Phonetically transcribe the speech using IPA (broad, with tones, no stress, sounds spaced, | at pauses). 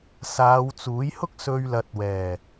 s aː˨˧ w t͡s uː˨˥ j h ʊ˥ k̚ s ɵ˧ ɥ l ɐ˨ t̚ w ɛː˨˩